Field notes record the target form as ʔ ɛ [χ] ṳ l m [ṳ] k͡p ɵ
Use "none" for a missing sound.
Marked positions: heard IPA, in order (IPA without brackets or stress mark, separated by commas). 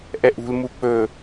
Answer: ʔ, u